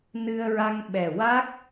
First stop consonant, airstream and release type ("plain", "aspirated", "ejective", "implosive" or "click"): implosive